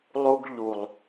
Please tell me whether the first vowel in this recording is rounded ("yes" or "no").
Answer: yes